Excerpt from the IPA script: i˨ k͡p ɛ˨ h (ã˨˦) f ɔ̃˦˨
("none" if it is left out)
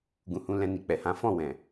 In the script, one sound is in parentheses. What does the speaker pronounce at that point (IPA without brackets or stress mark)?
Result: ã˨˦